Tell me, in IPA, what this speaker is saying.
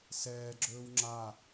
s ɛː ɡ͡ǁ ɵː w ŋ͡ǁ a

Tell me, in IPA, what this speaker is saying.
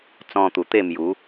t͡s ɔ̃˧ t̪ u˨˩ t̪ e˥˧ m j u˨˦

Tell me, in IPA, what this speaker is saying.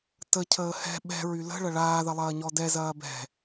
t ə cʰ əː h ɛ̤ ɓ ɛ̤ ɹ y l ə̤ ɭ ɐ ɭ aː ð ɐ lˠ ɐː ɲ ɔ d ɛ z ɐː b ɛ̤

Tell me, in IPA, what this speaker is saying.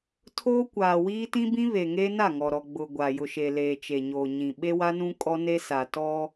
tʰ oː˦ kʷ aː˨ w iː˦ t ĩ˦ b ĩ˦ β e˨ ŋ eː˦ n a˦˨ ŋ ɔ˨ ɾ ɔ˨ ɡ͡b ʊ˨ ɡʷ a˨ j ʊ˨ ʃ e˨ l eː˨ t͡ʃ e˨ ɲ oː˨ ɲ ĩ˨ ɓ e˦ w a˦ n ũ˦ kʼ ɔ˦ n e˦ s a˨ t ɔ˦

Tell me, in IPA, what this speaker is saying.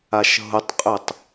a ʃ ɦ ʊ tˤ qʼ ø tˤ

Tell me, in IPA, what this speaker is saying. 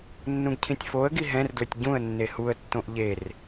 nː ũ ɡ cʰ ĩ tʲ f o ə̯ ɡ i ɦ ɛ̃ r d l ɵ tʲ ɟ ũ ə̯ nː e h u ə̯ tː õ ʔ ʎ e r

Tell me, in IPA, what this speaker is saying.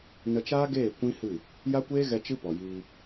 n ə˧ t͡ʃ aː˦ ɡ eː˦˨ kʷ ĩ˦ h ɨ˦˨ | j a˦ kʷ eː˦ ɣ ɛ˧ t͡ʃ ɨ˦ p ɔ˨ j iː˧

